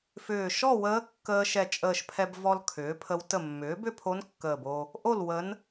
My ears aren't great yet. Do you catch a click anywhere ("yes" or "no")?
no